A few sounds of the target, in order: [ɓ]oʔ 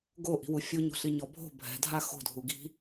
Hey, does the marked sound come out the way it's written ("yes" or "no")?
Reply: no